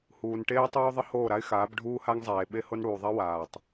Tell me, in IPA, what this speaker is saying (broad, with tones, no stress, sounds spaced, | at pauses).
h uː˨ n ʈ eː˦ tˤ oː˦ ðˤ ə˦ h oː˦˨ ɾ a˦ ɪ̯ x aː˨˦ b ɖʱ uː˦ h a˦ ŋ zˤ eː˨ ɓ e˦ h o˦ n ɽ uː˨ ðˤ ɛ˦ w aː˨ tˤ